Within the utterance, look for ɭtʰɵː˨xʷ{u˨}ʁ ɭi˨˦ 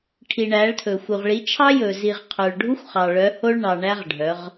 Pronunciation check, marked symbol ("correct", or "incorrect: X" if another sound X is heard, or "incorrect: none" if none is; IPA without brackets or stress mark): correct